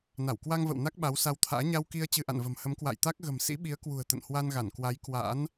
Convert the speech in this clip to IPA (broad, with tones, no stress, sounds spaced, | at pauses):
n a˧˩ w k w a˧ ŋ v ə̰˧˨ w n a˦˥ k̚ ɓ a˨˦ w s a˧ w t̪ʰ a̰ː˧˥ ɲ a˧ w k i˧ ə̯ t͡ɕ ɨ˧ ʔ a̰˧˨ n v ə̤˨˩ m h ə˨˦ m k w a̰˧˨ j t̪ a˦˥ k̚ ɣ ə̤˨˩ m s ḭ˧˥ ɓ i˨˦ ə̯ k w ṳ˨˩ ə̯ t̪ ə̰˧˨ n h w a˧ n ɣ a˧˩ n k w a˨˦ j k w a̰˧˥ n